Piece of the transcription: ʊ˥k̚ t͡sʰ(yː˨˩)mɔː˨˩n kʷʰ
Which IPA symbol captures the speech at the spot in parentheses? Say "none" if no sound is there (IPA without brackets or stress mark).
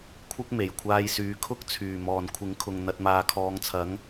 yː˨˩